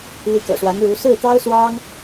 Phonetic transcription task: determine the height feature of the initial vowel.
high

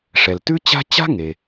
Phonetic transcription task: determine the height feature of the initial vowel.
mid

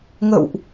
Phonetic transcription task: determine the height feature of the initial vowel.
mid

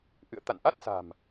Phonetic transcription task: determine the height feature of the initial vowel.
high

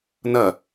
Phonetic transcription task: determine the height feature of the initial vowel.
low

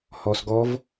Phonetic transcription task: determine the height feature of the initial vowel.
mid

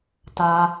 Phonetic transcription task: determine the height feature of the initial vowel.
low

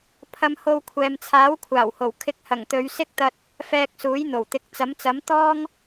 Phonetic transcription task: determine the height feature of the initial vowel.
low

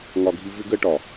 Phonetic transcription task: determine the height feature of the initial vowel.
low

